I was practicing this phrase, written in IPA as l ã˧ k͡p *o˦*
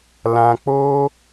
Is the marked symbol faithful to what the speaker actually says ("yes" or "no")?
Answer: yes